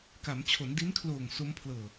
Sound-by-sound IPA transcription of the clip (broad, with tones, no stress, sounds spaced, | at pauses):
k a˩˦ m t͡ɕʰ o˩˦ n d i˦˥ n kʰ l oː˨˩ ŋ s o˦˥ m pʰ l ɤː˨˩